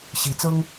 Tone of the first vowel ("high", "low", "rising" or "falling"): rising